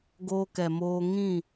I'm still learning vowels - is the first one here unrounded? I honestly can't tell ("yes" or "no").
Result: no